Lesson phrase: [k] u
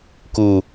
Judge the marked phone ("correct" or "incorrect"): correct